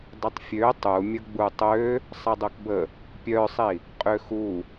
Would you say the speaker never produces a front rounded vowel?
no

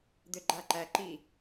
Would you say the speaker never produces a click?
no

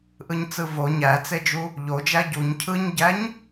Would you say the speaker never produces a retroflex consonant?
yes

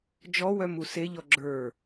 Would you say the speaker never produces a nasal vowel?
yes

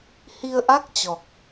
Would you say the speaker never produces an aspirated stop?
yes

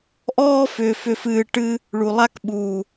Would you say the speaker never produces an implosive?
no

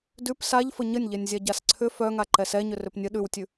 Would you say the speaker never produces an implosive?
no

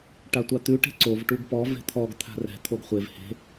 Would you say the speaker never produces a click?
no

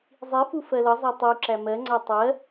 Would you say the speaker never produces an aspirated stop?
yes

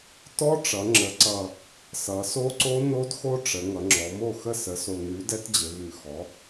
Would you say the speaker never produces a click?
no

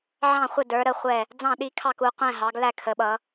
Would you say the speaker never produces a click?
yes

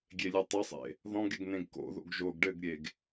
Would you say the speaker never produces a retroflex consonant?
no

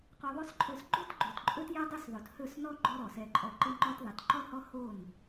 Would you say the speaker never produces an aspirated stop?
no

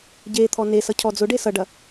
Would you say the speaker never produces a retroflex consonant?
no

